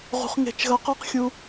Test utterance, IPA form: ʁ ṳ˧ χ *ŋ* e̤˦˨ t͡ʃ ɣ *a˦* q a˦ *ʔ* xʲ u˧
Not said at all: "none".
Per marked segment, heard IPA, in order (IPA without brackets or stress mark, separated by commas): ŋ, ɐ˦, q